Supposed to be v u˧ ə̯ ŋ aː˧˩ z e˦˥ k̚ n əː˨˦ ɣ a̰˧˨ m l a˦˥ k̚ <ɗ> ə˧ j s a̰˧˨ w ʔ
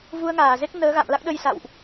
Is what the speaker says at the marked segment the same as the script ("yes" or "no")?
yes